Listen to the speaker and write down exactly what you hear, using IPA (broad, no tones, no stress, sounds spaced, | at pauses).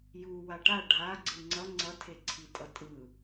j u w a ʈ a ɖʱ a ɡ͡ǀ ɯ ŋ͡ǀ ʌ ŋ͡ǀ ʌ tʰ e ǀʰ i tʼ ʌ tʼ ɯ